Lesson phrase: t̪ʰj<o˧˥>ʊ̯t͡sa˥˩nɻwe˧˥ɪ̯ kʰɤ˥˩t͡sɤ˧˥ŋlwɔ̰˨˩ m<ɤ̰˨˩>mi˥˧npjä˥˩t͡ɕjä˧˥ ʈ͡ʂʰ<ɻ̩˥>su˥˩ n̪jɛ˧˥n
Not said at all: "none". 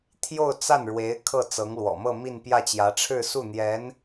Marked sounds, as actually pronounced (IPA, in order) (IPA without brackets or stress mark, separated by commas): o˥˧, ɤ˥˧, ɻ̩˥˧